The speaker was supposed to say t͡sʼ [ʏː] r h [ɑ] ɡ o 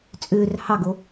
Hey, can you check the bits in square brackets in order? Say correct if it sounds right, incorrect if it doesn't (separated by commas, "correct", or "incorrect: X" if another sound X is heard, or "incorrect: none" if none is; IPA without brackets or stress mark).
correct, correct